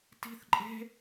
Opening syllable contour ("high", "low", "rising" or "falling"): high